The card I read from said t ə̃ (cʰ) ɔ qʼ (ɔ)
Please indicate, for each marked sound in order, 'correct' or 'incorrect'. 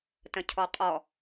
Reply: correct, correct

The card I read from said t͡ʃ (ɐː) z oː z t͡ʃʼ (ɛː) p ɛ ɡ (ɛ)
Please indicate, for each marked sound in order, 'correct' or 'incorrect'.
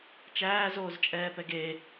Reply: incorrect: æː, correct, incorrect: e

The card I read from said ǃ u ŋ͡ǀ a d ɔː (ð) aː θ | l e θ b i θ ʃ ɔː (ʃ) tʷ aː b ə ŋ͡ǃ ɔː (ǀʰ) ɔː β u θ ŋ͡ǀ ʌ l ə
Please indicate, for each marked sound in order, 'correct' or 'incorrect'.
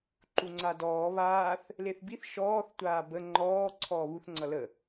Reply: incorrect: β, incorrect: θ, correct

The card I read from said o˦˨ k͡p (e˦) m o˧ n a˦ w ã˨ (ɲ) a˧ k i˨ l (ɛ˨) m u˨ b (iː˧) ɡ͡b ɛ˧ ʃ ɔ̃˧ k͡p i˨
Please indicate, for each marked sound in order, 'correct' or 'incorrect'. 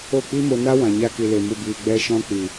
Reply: incorrect: i˦, correct, incorrect: e˨, incorrect: iː˨

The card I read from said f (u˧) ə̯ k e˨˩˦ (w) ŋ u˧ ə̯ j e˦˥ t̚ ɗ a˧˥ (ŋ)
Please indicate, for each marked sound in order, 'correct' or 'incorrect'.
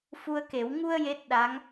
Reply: correct, correct, correct

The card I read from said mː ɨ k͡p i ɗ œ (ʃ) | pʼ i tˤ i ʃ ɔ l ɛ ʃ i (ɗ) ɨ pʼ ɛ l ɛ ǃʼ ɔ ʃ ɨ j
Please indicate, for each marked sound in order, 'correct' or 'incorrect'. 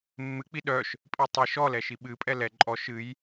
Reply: correct, incorrect: ɓ

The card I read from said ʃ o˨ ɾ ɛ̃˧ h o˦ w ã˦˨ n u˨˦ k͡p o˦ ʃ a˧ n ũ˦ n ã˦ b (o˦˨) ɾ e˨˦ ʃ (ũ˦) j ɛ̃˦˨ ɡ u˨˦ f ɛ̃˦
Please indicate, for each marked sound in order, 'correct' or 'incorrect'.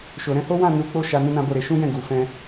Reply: correct, correct

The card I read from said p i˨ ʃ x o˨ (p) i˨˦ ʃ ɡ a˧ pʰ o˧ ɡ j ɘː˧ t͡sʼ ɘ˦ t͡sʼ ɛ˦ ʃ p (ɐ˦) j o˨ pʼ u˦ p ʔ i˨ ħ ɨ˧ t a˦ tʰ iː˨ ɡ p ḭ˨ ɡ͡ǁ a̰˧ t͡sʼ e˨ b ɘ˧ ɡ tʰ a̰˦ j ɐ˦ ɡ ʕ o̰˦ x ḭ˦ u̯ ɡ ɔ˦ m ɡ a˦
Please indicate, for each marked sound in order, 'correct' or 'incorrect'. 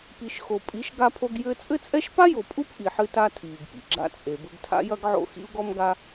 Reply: incorrect: pʼ, incorrect: a˦

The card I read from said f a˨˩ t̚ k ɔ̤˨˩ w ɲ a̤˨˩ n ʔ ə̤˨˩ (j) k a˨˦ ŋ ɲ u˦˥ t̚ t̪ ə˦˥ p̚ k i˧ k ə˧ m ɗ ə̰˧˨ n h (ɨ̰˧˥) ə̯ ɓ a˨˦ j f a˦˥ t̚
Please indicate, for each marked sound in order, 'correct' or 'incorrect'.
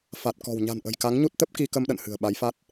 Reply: correct, incorrect: ɨ̤˨˩

